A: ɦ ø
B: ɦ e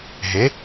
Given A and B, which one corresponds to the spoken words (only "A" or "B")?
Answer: B